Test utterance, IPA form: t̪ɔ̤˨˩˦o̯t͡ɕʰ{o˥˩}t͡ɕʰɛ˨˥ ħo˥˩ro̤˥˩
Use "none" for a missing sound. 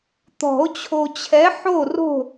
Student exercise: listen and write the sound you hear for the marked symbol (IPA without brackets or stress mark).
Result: o˨